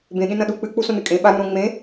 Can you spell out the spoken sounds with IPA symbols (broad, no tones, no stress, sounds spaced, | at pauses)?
b ẽ ɠ ẽ n ɐ̃ ɗ u k͡p ɨ k͡p u s õ n ɨ kʼ ẽ ɓ a ɾ ũ ɾ õ ŋ͡m ẽ